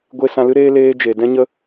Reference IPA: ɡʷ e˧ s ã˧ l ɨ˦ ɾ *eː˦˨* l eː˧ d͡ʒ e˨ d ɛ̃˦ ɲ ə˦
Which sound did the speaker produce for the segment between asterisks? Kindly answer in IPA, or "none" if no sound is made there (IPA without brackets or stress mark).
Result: eː˦